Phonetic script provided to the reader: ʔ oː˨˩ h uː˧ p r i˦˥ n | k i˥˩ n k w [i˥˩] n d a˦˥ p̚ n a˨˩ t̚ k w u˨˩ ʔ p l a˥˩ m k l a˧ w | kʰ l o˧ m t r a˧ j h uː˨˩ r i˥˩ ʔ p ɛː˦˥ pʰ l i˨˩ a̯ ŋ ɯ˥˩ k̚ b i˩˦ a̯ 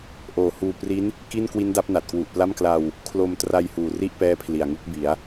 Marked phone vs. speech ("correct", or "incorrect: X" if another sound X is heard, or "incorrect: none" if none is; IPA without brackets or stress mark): incorrect: i˦˥